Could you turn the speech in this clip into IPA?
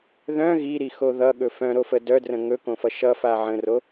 ð œ̃ ɣ i ɾ i x o ð ʌ ɠ ɵ f œ̃ ɾ o f ə d œ d r ə̃ ŋ ɵ k õ f ʌ ʃ ʌ f a ʕ ə̃ r o

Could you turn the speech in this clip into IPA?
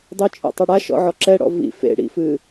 dˤ ɘ t͡ʃʼ o̰ tˤ e ɽ a ʃ ɔ̰ ʕ ɔ ǁ ɛ ɽ ɔ̰ v ḭ f ḛ ɽ ḭ f ɨ

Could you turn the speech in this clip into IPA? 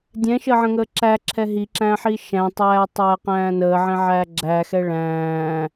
dʲ ɛ̃ ʃ əː ʕ ə̃ ŋ əː ǁ æ ǁʰ ɛ ɦ i ǁ æ̃ː ħ i ʃ æ̃ tˤ æː tˤ æː q æ̃ː n əː ʕ ɛ̃ ʕ æː ɡ͡ǁ æ x ɛ ɭ æ̃ː

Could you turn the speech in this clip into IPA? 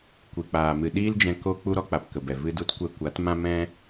kʷ i˨ k͡p aː˨ m ɨ˨ ɗ iː˦ l d͡ʒ ɛ̃˧ k o˧ k͡p u˧ ɾ ɔ˧ k͡p a˨ p k ə˨ b ɛ˨ v ɨ˧ d u˧ t kʷ ɛ˧ kʷ a˨˦ t m ã˦ m ɛ̃˦

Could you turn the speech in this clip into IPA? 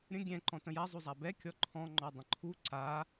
ɾʲ ə̃ ɡʲ ɛ̃ ǃ ɔ̃ t ə̃ j a zˤ u zˤ a b ɛ kʲ ɔ ǃʰ ɔ̃ ŋ͡ǃ ɔ dˤ ə̃ ǃʰ u ǀ a

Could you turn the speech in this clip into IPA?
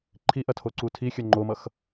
ǃʰ i ʔ ɐ tʰ o ǀ u tʰ i xʲ ʌ ŋ͡ǃ o m ʌ x

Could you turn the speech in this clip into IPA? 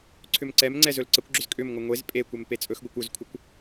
ǀʰ ʏ m ǀ ɛ m ŋ͡ǀ ɛ z ɵ l ǀ ə kʷ ɡ͡ǁ ʏ z kʼ ʏ m ŋʷ ə ŋʷ e z pʼ e kʷ ɛ m p e t͡sʼ ɵ x ɡʷ ɛ kʷ ɵ z kʷʰ ə kʷ

